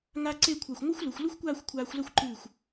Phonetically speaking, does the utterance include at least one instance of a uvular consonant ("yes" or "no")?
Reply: no